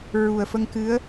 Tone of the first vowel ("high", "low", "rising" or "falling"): low